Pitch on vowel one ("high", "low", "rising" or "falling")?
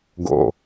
low